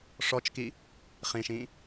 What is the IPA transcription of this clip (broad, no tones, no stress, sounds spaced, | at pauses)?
ʂ ɔ t͡ʃ k i | χ ĩ ʃ ĩ